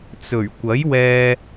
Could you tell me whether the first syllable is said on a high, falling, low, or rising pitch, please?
low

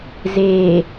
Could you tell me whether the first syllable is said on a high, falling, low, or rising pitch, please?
low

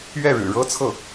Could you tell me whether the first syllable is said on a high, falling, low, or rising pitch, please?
falling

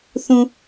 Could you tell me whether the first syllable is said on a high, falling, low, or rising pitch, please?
low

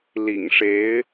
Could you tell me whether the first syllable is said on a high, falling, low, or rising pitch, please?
low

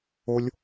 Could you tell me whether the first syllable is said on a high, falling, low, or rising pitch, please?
high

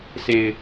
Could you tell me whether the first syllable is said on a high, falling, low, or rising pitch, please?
low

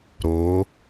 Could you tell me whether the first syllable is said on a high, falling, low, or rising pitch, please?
rising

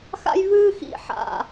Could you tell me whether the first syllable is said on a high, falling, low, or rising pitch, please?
high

